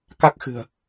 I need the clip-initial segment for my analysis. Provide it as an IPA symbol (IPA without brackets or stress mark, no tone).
k